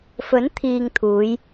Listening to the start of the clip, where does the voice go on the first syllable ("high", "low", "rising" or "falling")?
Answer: rising